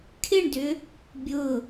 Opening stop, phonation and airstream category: aspirated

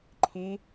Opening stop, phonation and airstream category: click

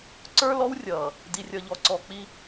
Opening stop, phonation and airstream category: click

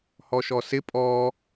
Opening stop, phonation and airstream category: ejective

